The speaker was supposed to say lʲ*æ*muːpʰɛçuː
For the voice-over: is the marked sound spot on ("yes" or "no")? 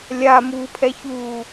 no